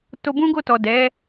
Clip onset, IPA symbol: t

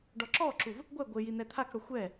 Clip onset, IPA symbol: ɖ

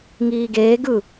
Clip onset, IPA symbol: ŋ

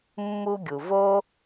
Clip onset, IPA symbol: mː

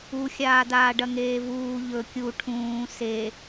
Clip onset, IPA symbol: u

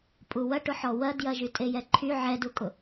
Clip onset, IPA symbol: pʼ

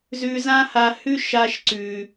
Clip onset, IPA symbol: z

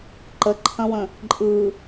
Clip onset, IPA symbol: ǃ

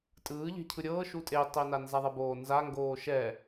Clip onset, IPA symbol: tʼ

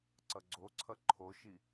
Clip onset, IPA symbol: ǀ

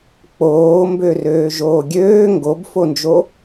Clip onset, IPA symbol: k͡p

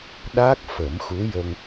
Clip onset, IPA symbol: ɗ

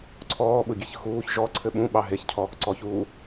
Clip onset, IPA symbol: ǀʰ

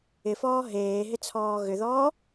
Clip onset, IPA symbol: ɪ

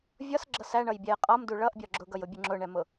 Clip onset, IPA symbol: vʲ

